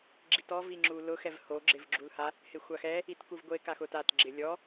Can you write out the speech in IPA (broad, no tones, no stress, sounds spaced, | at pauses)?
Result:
ɡ͡ǁ i t ɔ v i ŋ͡ǁ u l ʊ x ɛ v h o ɡ͡ǁ ɪ v ɡ͡ǁ u l h a | h ɪ xʷ a x ɛ | i t k u v ɡʷ e k a x ʊ t a t ɡ͡ǁ ɪ lʲ ɔ